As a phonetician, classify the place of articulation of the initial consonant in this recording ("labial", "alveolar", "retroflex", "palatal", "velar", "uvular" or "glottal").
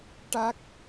retroflex